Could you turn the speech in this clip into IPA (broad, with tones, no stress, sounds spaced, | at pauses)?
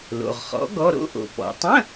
l o̰˩ ʁ χ ɔ̰˩˥ ɡ ɔ˧˥˧ ɾ o̰˧˥˧ ʔ o̰˩ p ɔ̰˩ tˤ ə̃˧˥˧